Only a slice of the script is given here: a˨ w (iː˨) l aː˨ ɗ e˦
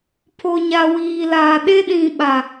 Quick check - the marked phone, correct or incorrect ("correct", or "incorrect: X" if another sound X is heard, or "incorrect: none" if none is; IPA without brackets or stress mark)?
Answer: correct